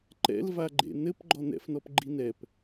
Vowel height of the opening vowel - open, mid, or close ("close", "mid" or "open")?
mid